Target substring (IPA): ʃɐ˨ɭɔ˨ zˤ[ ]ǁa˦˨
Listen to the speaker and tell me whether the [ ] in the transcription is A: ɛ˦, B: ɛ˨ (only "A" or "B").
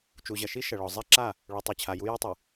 A